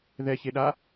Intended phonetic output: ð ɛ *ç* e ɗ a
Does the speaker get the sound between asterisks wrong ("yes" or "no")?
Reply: no